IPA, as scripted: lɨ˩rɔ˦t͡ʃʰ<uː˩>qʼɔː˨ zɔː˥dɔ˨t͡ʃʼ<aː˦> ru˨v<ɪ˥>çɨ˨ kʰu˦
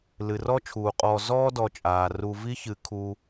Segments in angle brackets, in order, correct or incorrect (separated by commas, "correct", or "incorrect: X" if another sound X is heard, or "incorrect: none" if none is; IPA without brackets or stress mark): correct, incorrect: aː˩, incorrect: i˥